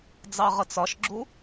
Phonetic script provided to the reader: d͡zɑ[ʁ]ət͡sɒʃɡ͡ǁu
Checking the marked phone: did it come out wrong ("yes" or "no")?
no